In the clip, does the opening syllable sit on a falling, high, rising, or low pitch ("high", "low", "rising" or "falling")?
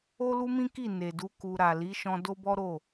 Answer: high